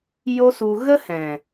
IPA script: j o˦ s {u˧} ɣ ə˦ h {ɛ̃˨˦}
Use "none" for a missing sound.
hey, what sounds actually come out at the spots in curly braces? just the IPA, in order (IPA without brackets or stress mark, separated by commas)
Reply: u˧, ɛ̃˨